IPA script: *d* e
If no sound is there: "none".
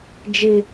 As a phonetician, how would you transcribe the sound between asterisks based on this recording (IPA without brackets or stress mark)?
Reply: d͡ʒ